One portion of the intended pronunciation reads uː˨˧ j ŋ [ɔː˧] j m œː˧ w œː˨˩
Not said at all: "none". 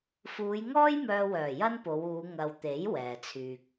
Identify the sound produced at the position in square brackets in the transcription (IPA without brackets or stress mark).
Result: ɔː˥